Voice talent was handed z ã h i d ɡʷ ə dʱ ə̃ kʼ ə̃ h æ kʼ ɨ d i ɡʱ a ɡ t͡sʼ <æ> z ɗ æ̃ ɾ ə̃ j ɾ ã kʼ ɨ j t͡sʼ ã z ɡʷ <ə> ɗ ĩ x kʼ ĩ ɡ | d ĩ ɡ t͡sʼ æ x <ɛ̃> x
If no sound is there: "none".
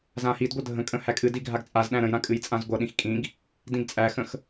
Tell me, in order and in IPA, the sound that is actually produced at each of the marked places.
a, ʌ, ə̃

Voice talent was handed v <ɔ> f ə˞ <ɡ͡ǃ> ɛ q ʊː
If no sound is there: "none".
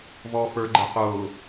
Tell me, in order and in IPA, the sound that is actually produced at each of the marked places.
ɔː, ɡ͡ǃ

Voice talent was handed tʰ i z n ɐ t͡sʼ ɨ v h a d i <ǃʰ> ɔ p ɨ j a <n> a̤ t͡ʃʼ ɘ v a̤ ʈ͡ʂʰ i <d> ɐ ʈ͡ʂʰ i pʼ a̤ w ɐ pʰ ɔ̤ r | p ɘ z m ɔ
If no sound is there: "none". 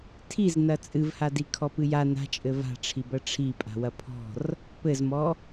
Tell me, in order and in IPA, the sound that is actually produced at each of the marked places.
kʰ, n, b

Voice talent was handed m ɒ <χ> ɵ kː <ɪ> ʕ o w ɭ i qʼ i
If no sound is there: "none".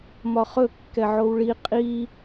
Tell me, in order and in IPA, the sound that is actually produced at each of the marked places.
χ, ɛ

